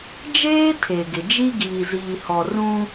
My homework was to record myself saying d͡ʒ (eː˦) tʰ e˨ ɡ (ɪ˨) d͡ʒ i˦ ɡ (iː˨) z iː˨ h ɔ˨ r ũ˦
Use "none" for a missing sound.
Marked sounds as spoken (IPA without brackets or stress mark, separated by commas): eː˦, ɪ˨, iː˨